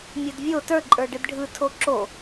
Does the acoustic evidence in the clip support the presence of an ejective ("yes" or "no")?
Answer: yes